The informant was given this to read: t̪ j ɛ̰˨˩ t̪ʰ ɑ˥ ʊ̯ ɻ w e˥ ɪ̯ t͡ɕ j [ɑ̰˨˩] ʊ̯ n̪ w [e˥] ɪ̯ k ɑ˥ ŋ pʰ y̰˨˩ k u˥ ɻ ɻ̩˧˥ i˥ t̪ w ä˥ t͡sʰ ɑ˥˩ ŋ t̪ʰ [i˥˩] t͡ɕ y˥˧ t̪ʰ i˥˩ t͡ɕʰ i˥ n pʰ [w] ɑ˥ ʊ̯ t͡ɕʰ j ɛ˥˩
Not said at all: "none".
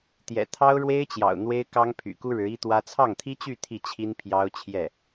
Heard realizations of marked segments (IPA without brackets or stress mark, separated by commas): ɑ̰˨˩, e˥, i˥, j